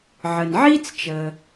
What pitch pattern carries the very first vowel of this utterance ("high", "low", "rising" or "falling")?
low